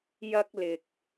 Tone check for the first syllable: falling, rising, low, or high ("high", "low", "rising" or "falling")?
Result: high